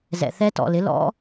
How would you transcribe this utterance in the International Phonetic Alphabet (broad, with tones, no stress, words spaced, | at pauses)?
zɛ̰˨θɛ˦˥tɔ̰˨lɪ˩˥ lɔ̰˦˥